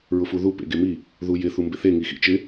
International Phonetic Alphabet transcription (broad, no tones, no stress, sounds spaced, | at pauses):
ɹ ʊ f u ð u p ḛ ɡ e m i | ð u j ɪ θ u m b ɪ θ e ŋ i x ḭ t͡ʃ ɪ